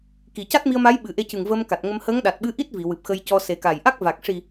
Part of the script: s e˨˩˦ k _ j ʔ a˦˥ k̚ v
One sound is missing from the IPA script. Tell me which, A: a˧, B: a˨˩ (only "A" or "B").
B